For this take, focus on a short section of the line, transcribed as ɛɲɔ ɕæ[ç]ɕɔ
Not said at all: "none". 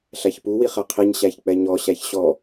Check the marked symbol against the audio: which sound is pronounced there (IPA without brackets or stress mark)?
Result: ç